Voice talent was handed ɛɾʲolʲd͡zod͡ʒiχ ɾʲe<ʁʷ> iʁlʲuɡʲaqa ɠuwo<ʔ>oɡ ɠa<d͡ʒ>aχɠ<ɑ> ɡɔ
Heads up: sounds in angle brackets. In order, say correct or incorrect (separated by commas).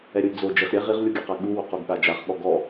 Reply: incorrect, incorrect, correct, incorrect